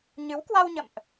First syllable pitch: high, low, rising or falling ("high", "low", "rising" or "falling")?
rising